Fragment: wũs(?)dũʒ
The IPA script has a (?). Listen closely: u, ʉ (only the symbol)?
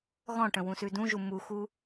ʉ